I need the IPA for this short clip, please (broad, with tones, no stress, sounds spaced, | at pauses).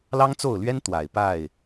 l ɑ˦ ŋ t͡s o˥˨ ʊ̯ l ɥ ɛ˦ n t̪ w a˨˩ ɪ̯ p a˥˨ ɪ̯